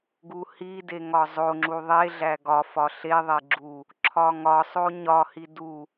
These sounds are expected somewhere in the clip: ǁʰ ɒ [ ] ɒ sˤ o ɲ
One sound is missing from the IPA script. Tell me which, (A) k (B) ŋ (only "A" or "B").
B